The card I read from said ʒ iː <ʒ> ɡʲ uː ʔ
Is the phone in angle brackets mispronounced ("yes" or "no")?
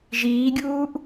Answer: yes